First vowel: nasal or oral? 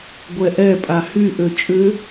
oral